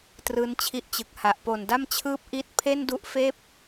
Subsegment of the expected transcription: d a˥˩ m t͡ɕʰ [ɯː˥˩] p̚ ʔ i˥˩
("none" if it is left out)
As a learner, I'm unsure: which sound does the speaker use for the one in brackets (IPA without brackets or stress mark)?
ɯː˥˩